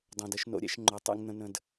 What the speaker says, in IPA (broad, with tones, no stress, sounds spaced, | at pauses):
dˤ õ˨ d ə˦ ʃ n o̰˦ ɾʲ ɛ̰˦ ʃ ŋ͡ǃ o˨ tˤ ɛ̰˦ ŋ n̪ ə̃˦ n ə̃˦ d